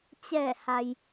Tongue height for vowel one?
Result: mid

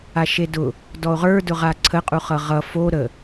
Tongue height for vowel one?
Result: low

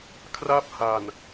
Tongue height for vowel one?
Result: low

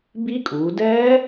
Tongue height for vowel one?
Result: high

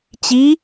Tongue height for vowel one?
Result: high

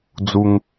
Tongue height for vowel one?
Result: high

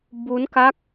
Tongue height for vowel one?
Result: high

